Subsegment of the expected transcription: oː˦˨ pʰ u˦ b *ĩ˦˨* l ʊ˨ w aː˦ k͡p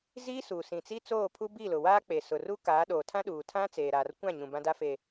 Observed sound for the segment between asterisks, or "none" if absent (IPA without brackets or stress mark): i˦˨